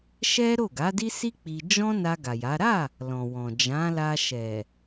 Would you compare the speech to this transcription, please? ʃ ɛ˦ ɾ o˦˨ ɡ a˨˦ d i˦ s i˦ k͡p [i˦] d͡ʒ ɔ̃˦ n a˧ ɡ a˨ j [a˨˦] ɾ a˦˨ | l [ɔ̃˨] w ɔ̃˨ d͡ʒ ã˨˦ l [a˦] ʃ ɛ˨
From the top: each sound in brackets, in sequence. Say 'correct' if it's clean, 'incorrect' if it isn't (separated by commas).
incorrect, correct, correct, incorrect